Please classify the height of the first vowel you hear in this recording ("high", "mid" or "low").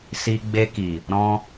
high